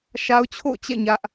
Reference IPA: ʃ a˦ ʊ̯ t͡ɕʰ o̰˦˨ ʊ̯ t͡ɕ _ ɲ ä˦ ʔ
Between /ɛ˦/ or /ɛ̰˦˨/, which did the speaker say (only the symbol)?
ɛ̰˦˨